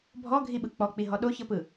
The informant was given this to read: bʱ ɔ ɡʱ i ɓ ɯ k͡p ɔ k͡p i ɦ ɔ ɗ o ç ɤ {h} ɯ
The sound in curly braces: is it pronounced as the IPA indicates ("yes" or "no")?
no